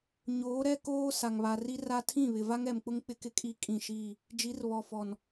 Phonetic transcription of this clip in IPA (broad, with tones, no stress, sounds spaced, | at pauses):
ɲ oː˨˦ ɾ ɛ˦ k oː˦ s a˨ ŋ β a˨ r i˦ r a˦ tʰ ĩ˦˨ β ɪ˨ v a˦ ŋ ɛ˨ m k͡p ʊ˦ ŋ k͡p ɪ˦ k ɪ˦ kʼ i˦ kʼ ĩ˦˨ ʃ i˦˨ | d͡ʒ i˨˦ r β ɔ˨ f ɔ˨ n